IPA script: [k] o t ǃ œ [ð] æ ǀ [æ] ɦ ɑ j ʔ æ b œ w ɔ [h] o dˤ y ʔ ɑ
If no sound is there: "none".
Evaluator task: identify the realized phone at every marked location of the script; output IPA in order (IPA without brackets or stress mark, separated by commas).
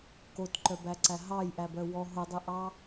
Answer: k, b, æ, ɦ